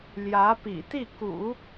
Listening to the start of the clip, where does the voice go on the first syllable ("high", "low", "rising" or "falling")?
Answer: rising